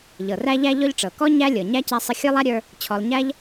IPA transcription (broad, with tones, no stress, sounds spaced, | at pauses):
ʎ ɤ˩ r æ˦ ʎ æ˦ ʎ ɔ˦ ʎ ʈ͡ʂ ɤ˩ k ɔ˥ ɲ æ˥ lʲ ɤ˩ ɲ æ˥ c a˦ sˤ ə˦ xʲ ə˞˥ lˠ a˥ ɾʲ ə˞˦ | t͡ɕʰ ɔ˨ lˠ ɲ æ˥ ʎ